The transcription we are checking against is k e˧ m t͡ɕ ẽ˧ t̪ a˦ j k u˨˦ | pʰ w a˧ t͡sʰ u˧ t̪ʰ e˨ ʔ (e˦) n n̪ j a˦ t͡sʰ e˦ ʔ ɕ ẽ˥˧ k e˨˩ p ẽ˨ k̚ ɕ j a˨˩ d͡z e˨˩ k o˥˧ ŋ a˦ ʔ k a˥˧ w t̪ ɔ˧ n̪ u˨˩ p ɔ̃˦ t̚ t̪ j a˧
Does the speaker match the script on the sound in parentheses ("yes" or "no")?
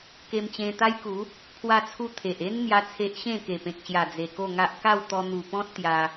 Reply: yes